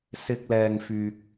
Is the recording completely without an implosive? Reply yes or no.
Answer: yes